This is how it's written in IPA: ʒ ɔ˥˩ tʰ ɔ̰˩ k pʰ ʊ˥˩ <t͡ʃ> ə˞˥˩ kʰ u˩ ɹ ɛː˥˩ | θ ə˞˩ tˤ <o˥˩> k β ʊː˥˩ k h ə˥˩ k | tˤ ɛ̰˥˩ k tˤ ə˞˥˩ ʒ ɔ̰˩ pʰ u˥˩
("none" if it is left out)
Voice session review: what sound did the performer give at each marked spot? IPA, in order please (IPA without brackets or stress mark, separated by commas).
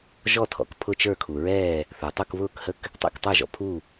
t͡ʃ, u˥˩